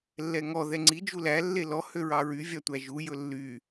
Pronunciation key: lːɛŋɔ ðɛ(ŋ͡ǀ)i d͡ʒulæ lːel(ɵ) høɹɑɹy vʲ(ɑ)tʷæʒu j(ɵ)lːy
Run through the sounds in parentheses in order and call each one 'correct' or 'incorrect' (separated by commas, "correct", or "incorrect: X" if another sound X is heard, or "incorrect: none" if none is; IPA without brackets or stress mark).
correct, incorrect: ɔ, correct, correct